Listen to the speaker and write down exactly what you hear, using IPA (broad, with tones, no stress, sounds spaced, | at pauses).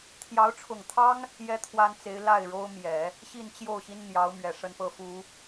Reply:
t̪ʰ j ɑ˧˥ ʊ̯ ʈ͡ʂʰ ʊ˨˩ ŋ t̪ʰ ɑ˥ ŋ | j ɛ˥ t̪ʰ w a˥ n t͡s e˧˥ ɪ̯ l a˥˩ ɪ̯ ɻ o˥ ʊ̯ m j ɛ˨˩˦ | ɕ i˥˧ n t͡ɕ j o˥˩ ʊ̯ ɕ i˥ n n̪ j ɑ˧˥ ʊ̯ m ɥ ɛ˨˩ ʂ ə˥˧ n p ɤ˥˩ f u˨˩˦